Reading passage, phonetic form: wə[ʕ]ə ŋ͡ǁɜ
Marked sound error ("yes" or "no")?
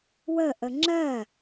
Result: yes